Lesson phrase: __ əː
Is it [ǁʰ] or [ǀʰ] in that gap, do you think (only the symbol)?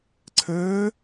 ǀʰ